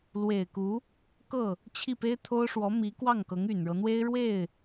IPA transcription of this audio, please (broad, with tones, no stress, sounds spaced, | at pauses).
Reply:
l w e˨˩ ɪ̯ k u˧˥ | k ɤ˥˩ | t͡ɕʰ i˥˩ p e˥ ɪ̯ t̪ʰ o˥ ʊ̯ ʂ w ɔ˧˥ m i˧˥ k w ɑ˥˩ ŋ k ɤ˧˥ ŋ y˨˩ n ɻ ɤ˦ n̪ w e˥ ɪ̯ ɻ w e˥˩ ɪ̯